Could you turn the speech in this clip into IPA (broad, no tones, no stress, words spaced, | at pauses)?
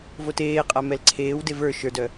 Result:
voteːqʼa mɛlǀʰeːwde və˞ ʃə˞dœ